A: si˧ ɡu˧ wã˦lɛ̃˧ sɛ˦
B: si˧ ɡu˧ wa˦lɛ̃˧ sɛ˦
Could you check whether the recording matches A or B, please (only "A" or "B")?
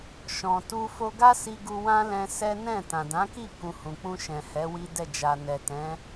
A